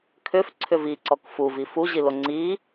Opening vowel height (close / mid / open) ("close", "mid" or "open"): close